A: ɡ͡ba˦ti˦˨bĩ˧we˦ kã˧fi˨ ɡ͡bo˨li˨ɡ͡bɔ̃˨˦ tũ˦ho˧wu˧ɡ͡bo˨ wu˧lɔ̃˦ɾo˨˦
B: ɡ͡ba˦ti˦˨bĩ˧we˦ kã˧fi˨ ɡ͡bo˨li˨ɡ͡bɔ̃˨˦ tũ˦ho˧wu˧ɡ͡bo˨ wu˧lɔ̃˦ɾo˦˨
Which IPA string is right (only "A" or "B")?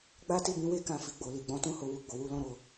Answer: B